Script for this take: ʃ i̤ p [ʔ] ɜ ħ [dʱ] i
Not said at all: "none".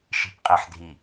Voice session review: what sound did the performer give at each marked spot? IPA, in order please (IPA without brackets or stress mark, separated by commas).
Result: qʼ, dʱ